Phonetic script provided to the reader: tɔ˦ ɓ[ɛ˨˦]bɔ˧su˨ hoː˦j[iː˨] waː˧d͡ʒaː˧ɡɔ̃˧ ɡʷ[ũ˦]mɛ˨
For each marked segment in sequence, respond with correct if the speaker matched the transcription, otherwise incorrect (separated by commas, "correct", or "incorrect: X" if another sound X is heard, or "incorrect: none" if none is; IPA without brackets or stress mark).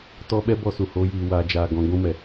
incorrect: ɛ˦, incorrect: iː˧, incorrect: ũ˧